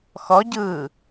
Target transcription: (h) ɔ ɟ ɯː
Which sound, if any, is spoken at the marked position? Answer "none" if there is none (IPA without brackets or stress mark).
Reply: x